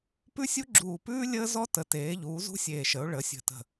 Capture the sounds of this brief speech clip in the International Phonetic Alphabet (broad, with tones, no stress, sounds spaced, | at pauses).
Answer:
p ʉ˥ sʲ u˥ ɡ͡ǁ uː˧˩ p ʉː˥ lʲ əː˥ z ɔ˥ t ə˩˥ t eː˩˥ ʎ uː˩˥ z ṳ˥ sʲ eː˧˩ ʃ ə˩˥ ʊ̯ ɭ ə˩˥ sʲ ə̤˧˩ t ə̤˧˩